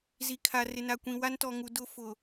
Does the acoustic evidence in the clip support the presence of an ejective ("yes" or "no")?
no